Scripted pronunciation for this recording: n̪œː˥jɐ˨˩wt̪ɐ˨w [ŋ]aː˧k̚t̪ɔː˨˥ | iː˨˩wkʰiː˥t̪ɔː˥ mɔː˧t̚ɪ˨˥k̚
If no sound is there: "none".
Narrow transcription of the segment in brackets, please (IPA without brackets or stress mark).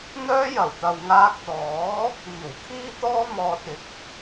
ŋ